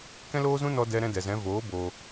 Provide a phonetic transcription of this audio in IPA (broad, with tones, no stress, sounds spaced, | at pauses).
k ɛ̃˦ l oː˦ z ũ˦ n ɔ˦ d ɛ˦ ɾ ɛ̃˦ d ɛ˨ z ɛ̃˨˦ v oː˨˦ b oː˧